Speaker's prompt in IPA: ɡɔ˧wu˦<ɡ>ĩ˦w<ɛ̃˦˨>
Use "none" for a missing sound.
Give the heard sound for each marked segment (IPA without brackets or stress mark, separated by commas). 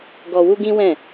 ɡ, ɛ̃˦˨